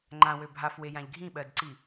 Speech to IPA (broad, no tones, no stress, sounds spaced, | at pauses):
ŋ͡ǃ ã w ø bʱ a f w e j ã ʎ ɡʱ ĩ ɓ ɜ d ǀ i